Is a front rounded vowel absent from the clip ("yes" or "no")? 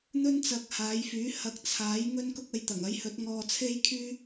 no